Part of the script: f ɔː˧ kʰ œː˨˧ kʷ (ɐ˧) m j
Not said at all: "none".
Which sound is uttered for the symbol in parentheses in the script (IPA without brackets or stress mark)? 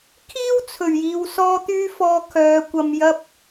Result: ɐ˧